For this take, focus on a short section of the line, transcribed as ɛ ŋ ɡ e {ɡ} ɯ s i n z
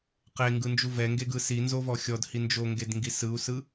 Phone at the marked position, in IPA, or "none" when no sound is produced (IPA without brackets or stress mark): ɡ